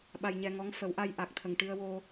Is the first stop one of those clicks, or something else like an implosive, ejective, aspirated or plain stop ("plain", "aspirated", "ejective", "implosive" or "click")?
implosive